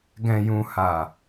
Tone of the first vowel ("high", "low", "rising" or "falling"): low